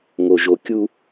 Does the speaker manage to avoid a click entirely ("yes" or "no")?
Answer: yes